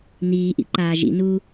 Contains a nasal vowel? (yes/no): no